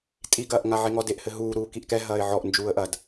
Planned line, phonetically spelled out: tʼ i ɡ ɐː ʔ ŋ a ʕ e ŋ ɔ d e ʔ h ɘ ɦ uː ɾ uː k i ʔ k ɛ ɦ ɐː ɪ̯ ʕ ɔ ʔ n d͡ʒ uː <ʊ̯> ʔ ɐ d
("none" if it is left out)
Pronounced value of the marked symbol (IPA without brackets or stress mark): ə̯